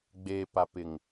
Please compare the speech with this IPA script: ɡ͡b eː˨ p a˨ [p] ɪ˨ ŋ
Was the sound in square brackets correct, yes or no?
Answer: yes